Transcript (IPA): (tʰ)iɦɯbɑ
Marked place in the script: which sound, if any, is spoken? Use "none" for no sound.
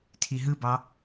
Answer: tʰ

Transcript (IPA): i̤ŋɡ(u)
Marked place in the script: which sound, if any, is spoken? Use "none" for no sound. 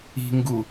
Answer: u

